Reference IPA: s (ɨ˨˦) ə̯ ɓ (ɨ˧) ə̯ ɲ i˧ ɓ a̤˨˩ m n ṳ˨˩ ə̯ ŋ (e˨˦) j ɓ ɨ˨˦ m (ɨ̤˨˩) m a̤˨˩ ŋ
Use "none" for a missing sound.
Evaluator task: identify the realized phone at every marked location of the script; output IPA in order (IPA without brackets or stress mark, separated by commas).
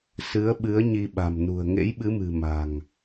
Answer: ɨ˨˦, ɨ˨˦, ḛ˧˥, ɨ̤˨˩